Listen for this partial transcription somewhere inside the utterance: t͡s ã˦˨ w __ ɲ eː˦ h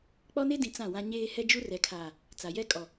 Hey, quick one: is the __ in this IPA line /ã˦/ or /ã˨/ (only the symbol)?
ã˦